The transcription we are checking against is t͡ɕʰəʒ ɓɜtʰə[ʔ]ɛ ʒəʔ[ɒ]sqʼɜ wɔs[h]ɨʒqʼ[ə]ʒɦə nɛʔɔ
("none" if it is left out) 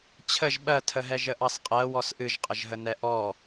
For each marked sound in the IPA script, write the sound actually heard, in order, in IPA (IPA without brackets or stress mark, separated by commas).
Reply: ɦ, ɑ, ʔ, ə